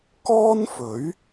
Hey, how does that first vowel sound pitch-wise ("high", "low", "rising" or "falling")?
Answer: high